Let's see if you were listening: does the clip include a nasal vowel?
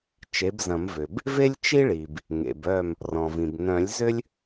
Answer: yes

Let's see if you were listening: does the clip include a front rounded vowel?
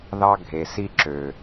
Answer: yes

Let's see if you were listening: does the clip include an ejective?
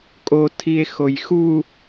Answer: yes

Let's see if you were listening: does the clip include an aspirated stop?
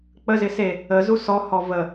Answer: no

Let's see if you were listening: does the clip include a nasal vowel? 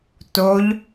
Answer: no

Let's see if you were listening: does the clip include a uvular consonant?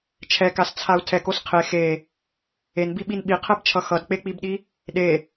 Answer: yes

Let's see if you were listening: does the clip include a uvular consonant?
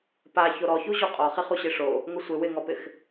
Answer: yes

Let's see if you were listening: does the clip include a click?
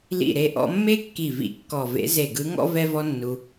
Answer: no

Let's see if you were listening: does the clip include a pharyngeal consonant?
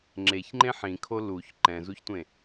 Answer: yes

